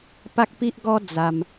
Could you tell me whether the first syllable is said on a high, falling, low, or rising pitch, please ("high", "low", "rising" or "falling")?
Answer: high